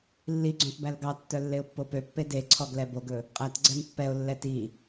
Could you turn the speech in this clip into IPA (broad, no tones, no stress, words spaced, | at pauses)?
lːiɡ͡ǀõt bælɡɑtːœ lːeʊ̯pːopøpːe deǀʰɔɡ lɛboɡɵ | qʼætɡ͡ǀɛm pːɛʊ̯lːɛ ti